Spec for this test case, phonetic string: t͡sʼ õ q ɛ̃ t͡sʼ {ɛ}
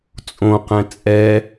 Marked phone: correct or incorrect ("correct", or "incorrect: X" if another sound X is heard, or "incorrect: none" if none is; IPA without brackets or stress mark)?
correct